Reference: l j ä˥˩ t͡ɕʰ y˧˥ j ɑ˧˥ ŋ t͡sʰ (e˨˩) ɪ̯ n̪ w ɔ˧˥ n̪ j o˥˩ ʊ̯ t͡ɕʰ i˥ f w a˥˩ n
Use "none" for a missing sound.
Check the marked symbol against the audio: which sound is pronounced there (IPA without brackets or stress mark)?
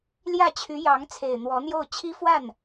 e˨˩